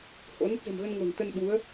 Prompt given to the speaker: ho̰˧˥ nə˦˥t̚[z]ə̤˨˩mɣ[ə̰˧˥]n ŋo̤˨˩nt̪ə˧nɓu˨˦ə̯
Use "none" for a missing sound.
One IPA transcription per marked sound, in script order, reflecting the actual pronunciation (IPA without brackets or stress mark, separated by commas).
z, ə˧